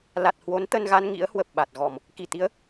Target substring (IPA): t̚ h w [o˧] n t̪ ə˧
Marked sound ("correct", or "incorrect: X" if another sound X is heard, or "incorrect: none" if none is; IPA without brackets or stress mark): incorrect: o˨˦